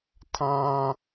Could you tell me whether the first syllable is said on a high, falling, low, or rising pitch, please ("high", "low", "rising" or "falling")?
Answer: high